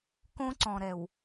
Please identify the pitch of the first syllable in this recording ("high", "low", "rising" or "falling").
high